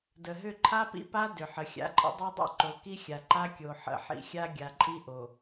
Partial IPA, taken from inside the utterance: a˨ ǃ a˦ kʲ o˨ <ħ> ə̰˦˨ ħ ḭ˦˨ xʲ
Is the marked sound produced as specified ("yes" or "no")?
yes